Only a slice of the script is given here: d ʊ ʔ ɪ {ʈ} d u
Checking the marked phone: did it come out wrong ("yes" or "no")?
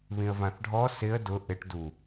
no